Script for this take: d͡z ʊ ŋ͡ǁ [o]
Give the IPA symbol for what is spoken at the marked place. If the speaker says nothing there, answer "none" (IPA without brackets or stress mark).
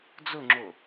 o